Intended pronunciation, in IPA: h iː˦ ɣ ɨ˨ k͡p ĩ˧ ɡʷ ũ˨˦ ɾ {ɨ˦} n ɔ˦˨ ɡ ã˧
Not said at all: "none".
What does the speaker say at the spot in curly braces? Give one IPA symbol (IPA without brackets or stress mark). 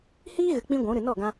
ɨ˨